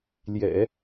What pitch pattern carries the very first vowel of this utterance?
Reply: low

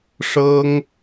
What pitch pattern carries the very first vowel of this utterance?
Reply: high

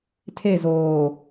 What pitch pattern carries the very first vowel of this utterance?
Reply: falling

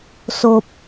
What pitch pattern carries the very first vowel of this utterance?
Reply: low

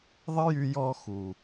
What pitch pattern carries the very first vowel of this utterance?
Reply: high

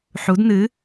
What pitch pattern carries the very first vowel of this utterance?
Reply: rising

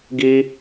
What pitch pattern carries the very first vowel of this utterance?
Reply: high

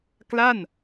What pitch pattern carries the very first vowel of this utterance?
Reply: falling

